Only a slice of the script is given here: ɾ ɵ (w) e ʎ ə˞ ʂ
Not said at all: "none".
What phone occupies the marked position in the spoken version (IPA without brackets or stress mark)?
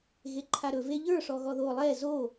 v